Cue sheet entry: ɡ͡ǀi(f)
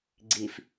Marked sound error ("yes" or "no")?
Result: no